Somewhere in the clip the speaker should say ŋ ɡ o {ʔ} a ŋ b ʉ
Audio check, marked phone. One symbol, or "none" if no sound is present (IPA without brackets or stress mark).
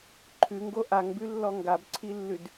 ʔ